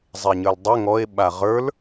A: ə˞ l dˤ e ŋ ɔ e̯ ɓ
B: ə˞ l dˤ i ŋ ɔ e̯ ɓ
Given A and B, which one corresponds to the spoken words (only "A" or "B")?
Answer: A